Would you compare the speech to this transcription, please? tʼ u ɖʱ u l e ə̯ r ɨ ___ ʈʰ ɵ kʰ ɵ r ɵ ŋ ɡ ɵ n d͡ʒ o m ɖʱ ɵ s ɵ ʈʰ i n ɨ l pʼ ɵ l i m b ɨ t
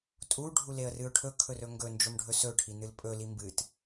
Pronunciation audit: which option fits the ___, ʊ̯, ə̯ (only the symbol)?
ʊ̯